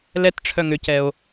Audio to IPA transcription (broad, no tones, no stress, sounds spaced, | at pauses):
l ɛ t ʈ͡ʂʰ œ ŋ ʏ c ɛ o̯